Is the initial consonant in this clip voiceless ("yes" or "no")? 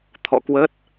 yes